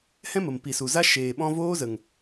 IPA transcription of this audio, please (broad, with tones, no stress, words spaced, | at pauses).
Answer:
hɛ̃˦mə˨mpi˨su˨ za˧ ʃeː˨ɓɔ̃˧voː˦zə˨ŋ